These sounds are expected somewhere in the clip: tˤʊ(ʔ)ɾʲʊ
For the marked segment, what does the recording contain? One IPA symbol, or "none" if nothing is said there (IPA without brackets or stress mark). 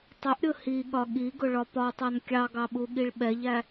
ʔ